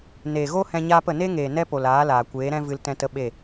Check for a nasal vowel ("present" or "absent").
present